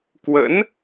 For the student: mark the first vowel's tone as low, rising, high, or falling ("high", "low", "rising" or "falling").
rising